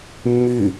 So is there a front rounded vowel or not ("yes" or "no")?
yes